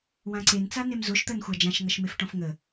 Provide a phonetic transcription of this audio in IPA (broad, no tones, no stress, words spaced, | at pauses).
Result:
wãǀen t͡sanemzoʃ t̪ɜnxʷad͡ʒãʃ ŋʌʃmefʈɔ̃fŋə